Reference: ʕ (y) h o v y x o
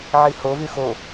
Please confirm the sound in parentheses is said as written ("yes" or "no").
no